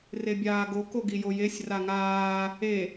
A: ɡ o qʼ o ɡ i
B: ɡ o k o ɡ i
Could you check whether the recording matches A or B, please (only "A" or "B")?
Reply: B